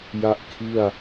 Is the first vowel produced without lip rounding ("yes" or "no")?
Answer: yes